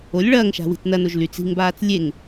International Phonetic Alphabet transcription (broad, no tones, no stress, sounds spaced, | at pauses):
o lʲ ɭ ɐː ŋ ʃ a̤ w i̤ t͡s n ɐ n o ʒ l y t͡s i̤ ŋ b aː t͡s lʲ e ŋ